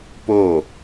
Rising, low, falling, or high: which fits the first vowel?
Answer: falling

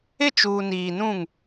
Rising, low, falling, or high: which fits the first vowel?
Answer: falling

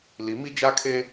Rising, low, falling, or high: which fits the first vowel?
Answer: rising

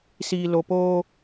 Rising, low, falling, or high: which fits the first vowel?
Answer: low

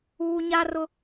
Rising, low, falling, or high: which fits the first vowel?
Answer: high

